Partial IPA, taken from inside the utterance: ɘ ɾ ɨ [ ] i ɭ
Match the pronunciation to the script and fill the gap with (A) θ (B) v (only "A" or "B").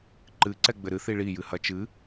A